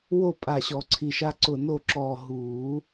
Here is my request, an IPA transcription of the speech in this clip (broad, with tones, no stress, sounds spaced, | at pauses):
w o˥˨ pʼ a˧˩ ɕ ɔ˨˩˦ ǀʰ i˧˩ ʃ a˦ ǀ ʊ˧˩ n o˥˨ ǁ ɔː˧˩ ɦ uː˨˩˦